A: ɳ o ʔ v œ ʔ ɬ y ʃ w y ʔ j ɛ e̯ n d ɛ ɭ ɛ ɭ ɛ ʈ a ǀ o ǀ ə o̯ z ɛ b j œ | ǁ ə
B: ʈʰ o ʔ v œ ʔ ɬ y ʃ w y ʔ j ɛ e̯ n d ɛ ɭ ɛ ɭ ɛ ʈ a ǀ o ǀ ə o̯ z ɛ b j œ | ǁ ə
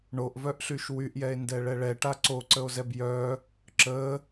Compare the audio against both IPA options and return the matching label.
A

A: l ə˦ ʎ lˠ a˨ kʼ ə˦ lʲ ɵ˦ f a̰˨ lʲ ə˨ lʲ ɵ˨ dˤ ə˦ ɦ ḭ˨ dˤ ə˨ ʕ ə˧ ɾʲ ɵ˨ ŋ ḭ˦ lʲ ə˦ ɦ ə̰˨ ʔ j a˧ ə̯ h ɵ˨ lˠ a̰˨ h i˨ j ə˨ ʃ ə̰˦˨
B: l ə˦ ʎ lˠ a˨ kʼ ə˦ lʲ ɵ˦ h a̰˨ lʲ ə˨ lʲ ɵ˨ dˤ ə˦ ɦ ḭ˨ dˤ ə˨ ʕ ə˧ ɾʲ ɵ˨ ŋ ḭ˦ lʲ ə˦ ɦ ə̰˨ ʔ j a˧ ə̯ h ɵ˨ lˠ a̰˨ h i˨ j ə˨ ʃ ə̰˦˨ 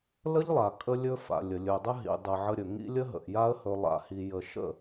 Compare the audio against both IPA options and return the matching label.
A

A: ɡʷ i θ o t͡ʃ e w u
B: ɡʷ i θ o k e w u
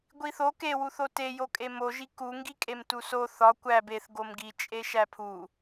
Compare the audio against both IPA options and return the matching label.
B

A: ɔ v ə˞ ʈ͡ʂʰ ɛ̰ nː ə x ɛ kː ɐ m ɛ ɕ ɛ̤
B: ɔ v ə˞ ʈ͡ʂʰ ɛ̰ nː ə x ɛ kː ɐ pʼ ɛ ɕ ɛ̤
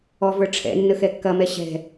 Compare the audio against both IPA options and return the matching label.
A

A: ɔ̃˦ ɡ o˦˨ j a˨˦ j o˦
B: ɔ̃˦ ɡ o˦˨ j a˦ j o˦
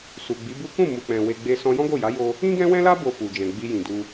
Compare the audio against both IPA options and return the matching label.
A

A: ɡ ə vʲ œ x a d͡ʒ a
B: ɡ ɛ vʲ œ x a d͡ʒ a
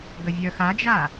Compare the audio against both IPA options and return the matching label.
A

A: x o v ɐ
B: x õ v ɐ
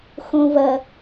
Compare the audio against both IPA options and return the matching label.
B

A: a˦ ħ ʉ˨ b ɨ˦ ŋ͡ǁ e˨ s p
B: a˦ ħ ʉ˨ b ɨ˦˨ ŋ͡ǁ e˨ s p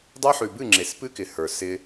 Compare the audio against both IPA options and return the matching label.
B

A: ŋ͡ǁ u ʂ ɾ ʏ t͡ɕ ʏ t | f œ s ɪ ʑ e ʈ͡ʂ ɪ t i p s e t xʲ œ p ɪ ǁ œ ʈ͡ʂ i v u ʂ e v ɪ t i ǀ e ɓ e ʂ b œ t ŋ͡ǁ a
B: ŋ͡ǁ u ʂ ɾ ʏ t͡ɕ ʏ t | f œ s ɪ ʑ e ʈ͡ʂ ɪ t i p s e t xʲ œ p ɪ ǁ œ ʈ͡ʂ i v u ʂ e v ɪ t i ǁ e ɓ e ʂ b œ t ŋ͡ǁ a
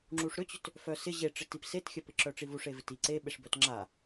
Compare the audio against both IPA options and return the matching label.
A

